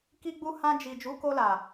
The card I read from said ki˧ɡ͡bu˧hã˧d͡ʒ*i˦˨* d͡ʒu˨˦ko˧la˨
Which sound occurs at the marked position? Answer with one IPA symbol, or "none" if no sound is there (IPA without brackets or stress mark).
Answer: i˨